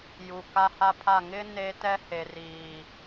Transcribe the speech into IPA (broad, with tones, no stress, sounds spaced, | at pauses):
j u˨ k a˦ h a˦ pʰ a˦˨ ŋ ɪ˦ n e˦ t ɛ˦ h e˨ r iː˨